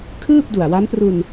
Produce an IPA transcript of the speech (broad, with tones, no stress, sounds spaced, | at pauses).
kʰ ɯː˥˩ p̚ d u˨˩ a̯ w a˦˥ n p r u˧ n